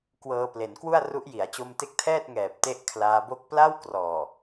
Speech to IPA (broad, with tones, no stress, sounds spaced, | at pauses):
k w ɤː˧ p l e˩˦ n k w u˥˩ a̯ r u˦˥ ʔ j i˩˦ a̯ t͡ɕ o˧ m t e˦˥ k̚ tʰ ɛː˥˩ t̚ ŋ ɛː˨˩ p̚ t e˥˩ ʔ kʰ l aː˦˥ b o˥˩ k̚ p l a˥˩ w k r ɔː˨˩